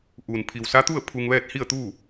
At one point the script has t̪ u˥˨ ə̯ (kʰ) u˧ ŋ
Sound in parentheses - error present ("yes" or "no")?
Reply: yes